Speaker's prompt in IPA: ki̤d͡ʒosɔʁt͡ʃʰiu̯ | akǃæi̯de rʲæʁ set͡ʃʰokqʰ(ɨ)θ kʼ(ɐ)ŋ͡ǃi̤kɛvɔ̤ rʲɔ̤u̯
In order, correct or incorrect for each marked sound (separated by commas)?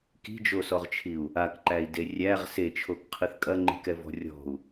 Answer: correct, correct